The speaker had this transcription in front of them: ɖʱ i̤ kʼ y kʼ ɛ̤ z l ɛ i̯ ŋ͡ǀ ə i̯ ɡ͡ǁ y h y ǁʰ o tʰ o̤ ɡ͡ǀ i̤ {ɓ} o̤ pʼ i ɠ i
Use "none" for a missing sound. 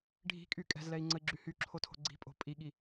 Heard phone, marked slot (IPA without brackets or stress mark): pʼ